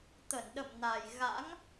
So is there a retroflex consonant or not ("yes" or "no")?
no